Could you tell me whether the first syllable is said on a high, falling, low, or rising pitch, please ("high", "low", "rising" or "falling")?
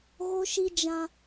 high